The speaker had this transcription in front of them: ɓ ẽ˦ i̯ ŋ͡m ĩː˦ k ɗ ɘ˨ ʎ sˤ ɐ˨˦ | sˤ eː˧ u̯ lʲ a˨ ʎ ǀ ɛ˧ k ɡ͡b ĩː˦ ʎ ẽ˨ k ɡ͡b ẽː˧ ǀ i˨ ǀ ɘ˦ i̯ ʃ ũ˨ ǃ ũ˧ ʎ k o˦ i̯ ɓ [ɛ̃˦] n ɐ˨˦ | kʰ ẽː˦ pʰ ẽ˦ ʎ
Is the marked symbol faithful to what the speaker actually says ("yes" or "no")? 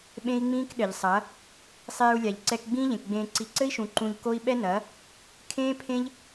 no